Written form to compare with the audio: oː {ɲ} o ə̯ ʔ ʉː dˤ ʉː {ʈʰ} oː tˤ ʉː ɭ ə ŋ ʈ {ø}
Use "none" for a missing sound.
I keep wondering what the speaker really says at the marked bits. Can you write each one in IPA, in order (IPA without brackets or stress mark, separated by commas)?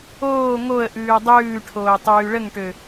ŋ, ʈʰ, ø